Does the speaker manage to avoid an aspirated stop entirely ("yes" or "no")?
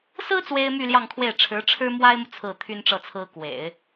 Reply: no